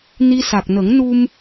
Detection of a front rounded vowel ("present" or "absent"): absent